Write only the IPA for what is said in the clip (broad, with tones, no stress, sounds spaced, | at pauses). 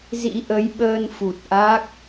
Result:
z ḭ˧˥ ʔ ə˨˦ j ɓ əː˧ n f u˨˩ t̚ ʔ a˦˥ k̚